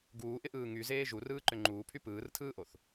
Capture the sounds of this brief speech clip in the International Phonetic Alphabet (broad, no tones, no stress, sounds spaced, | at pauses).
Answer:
ɡ uː ʔ ɪ ʔ ɯː ŋ y z eː ʒ u r ɯː ǃ ʏ ŋ͡ǃ uː pʰ y p ɯː r tʰ ɯː ʔ o θ